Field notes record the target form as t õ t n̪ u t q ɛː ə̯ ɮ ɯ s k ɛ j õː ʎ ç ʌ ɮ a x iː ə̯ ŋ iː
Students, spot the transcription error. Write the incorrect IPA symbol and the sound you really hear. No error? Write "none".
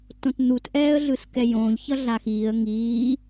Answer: q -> ʔ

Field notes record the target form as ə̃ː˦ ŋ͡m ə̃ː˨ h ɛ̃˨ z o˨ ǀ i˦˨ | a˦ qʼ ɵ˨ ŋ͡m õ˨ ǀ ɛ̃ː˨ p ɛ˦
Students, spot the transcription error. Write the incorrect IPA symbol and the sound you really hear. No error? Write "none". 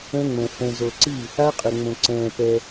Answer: none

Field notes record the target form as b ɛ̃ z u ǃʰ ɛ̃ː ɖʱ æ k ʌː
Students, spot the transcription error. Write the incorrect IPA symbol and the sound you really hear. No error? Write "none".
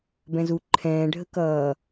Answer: æ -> ə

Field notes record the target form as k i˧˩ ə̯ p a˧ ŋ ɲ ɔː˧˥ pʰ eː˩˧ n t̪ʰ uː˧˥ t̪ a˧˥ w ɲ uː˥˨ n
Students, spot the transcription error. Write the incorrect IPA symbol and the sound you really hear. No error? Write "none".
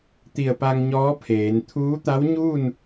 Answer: k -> t̪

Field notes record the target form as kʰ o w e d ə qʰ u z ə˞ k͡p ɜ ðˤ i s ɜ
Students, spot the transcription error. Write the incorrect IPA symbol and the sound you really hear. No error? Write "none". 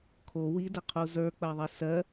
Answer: e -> i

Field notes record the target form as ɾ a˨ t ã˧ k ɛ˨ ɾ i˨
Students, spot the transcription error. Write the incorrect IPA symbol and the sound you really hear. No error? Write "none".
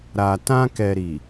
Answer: none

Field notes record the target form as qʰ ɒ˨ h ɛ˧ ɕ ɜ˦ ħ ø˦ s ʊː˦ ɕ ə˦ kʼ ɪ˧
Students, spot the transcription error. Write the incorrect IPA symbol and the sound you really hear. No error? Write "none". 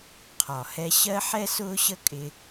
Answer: ø˦ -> ɛ˦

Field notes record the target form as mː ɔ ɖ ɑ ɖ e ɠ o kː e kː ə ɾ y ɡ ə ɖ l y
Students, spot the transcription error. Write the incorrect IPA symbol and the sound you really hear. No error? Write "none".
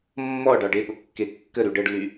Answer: ɡ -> ɖ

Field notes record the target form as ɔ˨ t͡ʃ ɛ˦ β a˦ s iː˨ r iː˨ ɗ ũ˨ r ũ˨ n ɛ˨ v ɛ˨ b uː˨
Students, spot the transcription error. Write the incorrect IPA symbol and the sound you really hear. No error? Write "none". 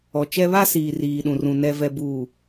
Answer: none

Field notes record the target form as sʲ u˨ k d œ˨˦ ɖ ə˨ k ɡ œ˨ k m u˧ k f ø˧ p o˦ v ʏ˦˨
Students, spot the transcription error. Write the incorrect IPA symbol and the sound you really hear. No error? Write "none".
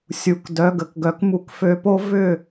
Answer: ɖ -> ɡ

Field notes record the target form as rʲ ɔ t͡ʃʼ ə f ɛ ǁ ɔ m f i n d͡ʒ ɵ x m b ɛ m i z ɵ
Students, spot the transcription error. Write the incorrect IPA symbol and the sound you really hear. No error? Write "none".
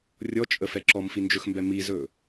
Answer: none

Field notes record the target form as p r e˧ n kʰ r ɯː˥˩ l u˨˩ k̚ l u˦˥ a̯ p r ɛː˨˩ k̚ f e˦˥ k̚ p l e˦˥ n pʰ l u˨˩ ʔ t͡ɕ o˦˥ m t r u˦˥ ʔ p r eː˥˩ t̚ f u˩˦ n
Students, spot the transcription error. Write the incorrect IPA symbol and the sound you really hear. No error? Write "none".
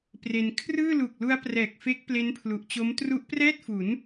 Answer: eː˥˩ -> ɛː˥˩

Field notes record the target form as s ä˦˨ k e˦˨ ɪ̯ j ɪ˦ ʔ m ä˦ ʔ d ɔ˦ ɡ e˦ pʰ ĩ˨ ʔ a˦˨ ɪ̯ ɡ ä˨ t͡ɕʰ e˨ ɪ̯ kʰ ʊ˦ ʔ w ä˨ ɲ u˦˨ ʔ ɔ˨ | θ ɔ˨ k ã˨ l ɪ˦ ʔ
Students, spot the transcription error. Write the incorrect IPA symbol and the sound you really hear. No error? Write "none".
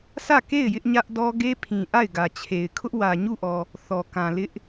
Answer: m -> ɲ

